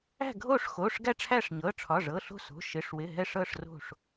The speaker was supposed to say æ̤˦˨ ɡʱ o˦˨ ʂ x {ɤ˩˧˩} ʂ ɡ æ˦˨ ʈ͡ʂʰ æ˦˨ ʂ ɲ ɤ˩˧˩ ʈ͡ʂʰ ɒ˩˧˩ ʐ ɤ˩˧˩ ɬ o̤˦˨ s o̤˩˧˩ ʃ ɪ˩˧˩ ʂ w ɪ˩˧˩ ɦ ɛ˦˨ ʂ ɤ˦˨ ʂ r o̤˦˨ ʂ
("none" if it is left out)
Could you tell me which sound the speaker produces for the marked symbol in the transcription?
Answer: o˩˧˩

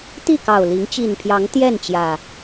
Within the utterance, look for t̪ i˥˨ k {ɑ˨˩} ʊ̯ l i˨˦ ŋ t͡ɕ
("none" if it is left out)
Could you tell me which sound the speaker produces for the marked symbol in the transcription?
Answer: ɑ˨˩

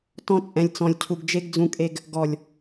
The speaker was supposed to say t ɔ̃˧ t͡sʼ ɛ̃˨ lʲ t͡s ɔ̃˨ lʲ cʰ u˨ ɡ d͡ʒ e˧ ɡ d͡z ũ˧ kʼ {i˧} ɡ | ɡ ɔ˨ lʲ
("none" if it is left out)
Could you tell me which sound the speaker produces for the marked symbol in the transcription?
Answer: e˧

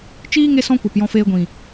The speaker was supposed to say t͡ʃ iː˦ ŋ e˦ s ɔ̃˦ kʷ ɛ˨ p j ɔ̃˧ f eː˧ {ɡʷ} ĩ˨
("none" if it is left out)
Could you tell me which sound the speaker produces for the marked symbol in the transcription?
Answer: ɡʷ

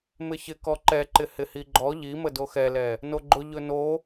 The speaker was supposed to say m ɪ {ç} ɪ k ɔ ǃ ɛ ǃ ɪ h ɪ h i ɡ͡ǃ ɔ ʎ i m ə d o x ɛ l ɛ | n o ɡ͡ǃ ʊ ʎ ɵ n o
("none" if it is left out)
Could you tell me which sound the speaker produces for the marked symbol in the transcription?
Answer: ç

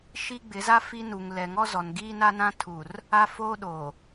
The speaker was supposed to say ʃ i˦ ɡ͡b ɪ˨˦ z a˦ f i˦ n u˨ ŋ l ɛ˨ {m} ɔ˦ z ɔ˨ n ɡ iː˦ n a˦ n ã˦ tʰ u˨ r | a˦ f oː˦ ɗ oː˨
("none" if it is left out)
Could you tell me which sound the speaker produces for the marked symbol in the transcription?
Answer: ŋ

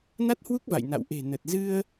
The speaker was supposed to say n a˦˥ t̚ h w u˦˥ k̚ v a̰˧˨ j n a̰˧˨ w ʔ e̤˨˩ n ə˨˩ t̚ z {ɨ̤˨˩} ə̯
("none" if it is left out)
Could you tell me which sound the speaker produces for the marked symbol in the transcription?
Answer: ɨ˧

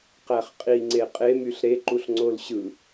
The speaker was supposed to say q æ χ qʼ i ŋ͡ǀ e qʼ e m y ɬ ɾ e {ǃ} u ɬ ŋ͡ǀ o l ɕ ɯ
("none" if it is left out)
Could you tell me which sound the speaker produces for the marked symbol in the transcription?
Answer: ǃ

